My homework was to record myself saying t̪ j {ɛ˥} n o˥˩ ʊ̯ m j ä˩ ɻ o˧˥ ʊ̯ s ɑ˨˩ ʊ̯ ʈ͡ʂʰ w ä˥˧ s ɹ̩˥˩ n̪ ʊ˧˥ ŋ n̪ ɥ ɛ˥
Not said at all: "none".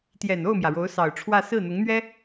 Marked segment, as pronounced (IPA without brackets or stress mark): ɛ˨˩